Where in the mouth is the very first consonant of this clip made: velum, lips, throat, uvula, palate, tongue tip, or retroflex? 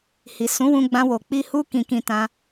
throat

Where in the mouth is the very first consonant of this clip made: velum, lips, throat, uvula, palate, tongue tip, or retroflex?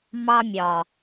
lips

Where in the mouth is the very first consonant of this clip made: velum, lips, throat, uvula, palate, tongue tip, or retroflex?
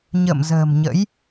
palate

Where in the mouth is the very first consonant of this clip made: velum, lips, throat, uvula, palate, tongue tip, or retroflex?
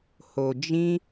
throat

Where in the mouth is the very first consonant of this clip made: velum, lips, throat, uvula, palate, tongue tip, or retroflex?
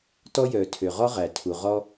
tongue tip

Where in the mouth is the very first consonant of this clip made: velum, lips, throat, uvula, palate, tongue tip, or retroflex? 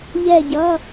palate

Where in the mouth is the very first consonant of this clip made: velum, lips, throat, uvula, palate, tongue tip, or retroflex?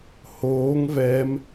throat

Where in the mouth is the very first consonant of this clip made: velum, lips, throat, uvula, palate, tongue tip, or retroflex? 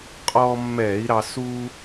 uvula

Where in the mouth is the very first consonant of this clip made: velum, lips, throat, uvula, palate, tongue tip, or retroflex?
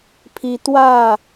lips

